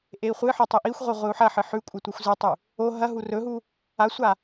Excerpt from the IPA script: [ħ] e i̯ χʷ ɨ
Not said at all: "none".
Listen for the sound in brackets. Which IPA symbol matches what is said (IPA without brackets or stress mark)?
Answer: ʔ